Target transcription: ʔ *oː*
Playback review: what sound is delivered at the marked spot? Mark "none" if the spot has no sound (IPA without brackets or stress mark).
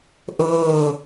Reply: oː